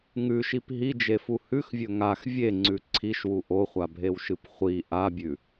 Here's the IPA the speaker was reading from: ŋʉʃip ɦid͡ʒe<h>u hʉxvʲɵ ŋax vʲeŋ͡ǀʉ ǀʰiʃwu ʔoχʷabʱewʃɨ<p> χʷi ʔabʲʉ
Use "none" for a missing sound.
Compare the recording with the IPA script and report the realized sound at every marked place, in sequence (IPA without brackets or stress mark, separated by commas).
f, p